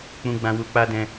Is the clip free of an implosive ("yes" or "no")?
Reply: yes